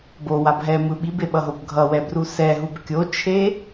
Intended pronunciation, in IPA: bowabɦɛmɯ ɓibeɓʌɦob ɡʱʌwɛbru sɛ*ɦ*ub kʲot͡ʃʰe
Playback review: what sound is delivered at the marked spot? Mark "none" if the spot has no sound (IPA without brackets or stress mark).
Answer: ɦ